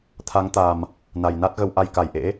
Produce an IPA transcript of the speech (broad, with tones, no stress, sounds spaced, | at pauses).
t̪ʰ a˨˦ ŋ t̪ a˨˩ m | n a˨˩ j n a˦˥ t̚ ɣ ə˧ w ʔ a˧ j k a˨˩ j ʔ ḛ˧˥